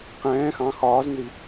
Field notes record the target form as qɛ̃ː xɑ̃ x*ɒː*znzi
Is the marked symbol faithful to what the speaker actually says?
yes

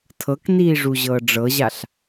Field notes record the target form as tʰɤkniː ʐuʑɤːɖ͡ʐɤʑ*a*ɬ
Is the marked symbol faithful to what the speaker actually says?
yes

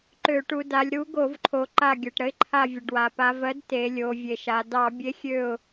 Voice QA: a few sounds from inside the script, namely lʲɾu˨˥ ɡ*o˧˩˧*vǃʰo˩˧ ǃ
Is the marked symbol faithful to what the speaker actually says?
yes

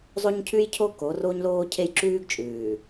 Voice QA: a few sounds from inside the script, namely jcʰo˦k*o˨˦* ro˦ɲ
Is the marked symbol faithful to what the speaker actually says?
yes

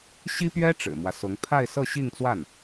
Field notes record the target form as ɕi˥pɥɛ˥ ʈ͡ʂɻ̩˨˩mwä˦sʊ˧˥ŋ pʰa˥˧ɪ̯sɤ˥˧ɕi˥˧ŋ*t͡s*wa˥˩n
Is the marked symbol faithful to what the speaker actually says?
yes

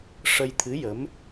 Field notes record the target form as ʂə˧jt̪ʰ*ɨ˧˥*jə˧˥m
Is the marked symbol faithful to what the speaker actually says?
yes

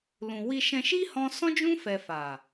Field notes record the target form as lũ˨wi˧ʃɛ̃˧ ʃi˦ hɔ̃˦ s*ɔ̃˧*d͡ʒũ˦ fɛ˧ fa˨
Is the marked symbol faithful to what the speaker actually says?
no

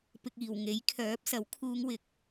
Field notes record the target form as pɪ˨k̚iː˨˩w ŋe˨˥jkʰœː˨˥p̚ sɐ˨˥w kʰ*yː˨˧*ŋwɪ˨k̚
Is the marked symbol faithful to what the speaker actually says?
no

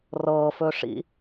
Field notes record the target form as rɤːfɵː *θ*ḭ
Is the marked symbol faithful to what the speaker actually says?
no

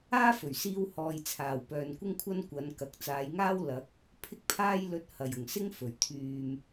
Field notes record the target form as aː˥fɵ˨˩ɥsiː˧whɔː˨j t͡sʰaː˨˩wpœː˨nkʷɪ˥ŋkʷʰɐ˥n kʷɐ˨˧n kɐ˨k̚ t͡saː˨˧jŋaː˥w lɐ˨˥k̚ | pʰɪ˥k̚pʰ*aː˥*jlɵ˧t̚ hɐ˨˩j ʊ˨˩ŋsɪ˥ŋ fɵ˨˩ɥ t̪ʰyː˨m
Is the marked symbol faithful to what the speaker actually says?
yes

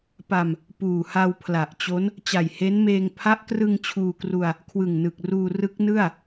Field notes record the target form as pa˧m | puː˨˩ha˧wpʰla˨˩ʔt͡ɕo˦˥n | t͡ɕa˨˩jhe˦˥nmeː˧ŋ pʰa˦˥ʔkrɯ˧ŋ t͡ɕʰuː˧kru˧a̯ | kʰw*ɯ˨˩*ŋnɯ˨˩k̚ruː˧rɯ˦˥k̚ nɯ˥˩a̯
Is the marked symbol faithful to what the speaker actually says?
yes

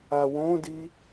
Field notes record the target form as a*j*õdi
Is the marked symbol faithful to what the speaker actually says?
no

